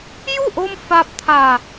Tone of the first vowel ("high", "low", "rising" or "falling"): falling